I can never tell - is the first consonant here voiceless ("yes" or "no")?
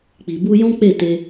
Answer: yes